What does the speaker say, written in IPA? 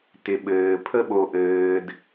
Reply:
t ɪ˨ ɓ ɘː˨ pʰ ə˦ ɓ o˧ ʔ ɘː˧ d

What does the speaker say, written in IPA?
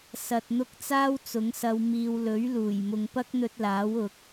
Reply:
s ɐ˨ t̚ n̪ ʊ˧ k̚ t͡s aː˥ w t͡s ʊ˨˥ ŋ s ɐ˧ w m iː˧ w l ɵ˨˥ ɥ l uː˨˩ j m ʊ˨ ŋ p ɐ˥ k̚ n̪ ɵ˧ t̚ l aː˨˥ w ʊ˨˥ k̚

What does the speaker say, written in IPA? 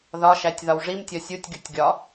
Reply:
ð ɒ ʃ æ tʲ ð ɒ w ʐ i m tʲ ɒ sʲ u tʲ ɡʲ u tʲ ɡʲ ɒ

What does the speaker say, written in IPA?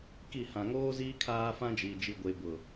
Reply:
k i˦˨ h ã˨ ŋ oː˦ z iː˦ kʰ aː˦ f ã˦ d͡ʒ i˨ d͡ʒ i˨ ɡʷ e˨ b ʊ˨

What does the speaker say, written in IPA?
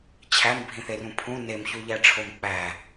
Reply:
t͡ɕʰ æ m bʱ ĩ θ e r ũ pʰ ũ n e m ç u ʎ æ ʈ͡ʂʰ o m k͡p æ

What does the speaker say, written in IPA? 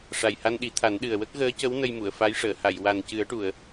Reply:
ʂ a˨˩ j h a˧ n ɗ i˨˩˦ t̪ʰ a˨˩˦ n ɗ ɨ˨˩ ə̯ w ə˦˥ k̚ ɣ əː˧˥ c ə˧˥ w n ə˧ j m u˨˩˨ ə̯ f a˧˥ j ʂ əː˨˩˨ h a˨˩˨ j w a˨˩ n c ɨ˨˩˦ ə̯ ʈ u˨˩˨ ə̯

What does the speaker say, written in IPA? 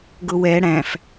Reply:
ɡ ʊ w ɛ ɽ æ̃ f

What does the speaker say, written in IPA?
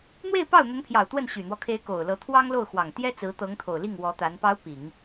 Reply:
n̪ w e˥˧ ɪ̯ p ɑ˥˩ ʊ̯ n̪ ə˧˥ n pʰ j ɑ˨˩ ʊ̯ t̪ w ə˥˩ n ɕ y˨˩ n̪ w ɔ˦ kʰ e˧˥ ɪ̯ k o˨˩ ʊ̯ l ɤ˧˥ t̪ʰ w ɑ˥ ŋ l o˥˩ ʊ̯ x w ɑ˨˩ ŋ t̪ j ɛ˥ t͡s ɹ̩˧˥ t̪ ɤ˧˥ ŋ t̪ʰ o˨˩ ʊ̯ l i˥˩ ŋ w ɔ˧˥ t̪ a˧˥ n p ɑ˧˥ ʊ̯ p i˨˩˦ ŋ

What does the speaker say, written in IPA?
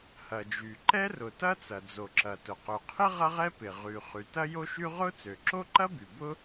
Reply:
h ɐ˩ d͡ʒ y˩ ǃ ɛ˥ r ʊ˩ t ɐ˥ t͡s ɐ˩ d͡z o˩ ǁ ɐ˩ t ʊ˩ q ø˩ qʰ ɪ˥ ʁ ɐ˥ ʁ ɛ˥ p ɪ˩ ʁ y˩ χ y˩ t ɐ˥ j o˥ ʃ y˥ ʁ ʊ˥ t͡s ø˩ ǁ o˥ ǃ ɐ˥ b y˩ b ʊ˥

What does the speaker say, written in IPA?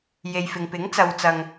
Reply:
j e˨ j f ɪ˨ ŋ p ɪ˨˥ ŋ t͡s ɐ˨ w t͡s ɐ˨ ŋ

